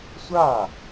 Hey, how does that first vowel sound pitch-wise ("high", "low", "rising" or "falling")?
falling